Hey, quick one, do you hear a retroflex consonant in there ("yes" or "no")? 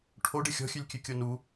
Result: yes